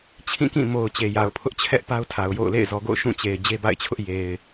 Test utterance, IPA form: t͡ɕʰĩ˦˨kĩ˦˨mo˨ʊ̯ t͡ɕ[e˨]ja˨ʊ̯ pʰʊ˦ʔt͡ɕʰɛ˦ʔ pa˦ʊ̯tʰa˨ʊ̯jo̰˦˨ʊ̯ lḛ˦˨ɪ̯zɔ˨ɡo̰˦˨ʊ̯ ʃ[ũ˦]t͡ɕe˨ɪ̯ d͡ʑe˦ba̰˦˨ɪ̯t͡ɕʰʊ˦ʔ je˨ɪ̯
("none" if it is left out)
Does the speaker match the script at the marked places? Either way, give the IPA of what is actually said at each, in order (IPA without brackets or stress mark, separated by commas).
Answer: e˨, ũ˦˨